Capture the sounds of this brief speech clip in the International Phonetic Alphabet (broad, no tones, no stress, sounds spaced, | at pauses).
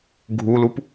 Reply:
ɡʱ u l u p